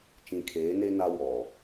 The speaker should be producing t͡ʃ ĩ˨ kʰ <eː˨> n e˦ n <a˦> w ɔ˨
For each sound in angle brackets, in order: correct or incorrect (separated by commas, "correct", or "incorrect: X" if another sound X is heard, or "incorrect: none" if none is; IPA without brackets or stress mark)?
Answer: incorrect: eː˨˦, correct